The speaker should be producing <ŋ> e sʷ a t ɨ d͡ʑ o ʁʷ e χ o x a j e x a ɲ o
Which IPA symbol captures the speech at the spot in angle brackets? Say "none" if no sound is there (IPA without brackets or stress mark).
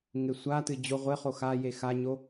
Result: ŋ